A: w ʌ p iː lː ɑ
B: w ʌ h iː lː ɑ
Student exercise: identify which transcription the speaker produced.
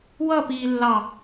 A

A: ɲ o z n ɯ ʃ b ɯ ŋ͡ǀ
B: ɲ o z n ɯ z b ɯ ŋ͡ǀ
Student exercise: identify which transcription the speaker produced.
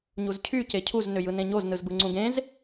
B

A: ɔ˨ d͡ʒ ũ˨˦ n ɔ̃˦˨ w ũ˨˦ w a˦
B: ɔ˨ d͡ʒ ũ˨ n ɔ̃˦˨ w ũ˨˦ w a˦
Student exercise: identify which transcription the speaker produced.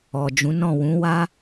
A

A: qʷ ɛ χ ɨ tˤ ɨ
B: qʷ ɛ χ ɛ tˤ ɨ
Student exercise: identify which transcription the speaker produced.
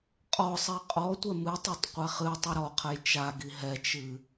A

